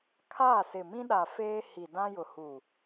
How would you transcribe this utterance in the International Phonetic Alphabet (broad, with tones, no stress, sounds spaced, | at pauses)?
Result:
kʰ aː˦˨ s ɪ˨ m ĩ˦ ɗ a˨ f eː˦ h i˨ d ã˦ j ʊ˨ h u˨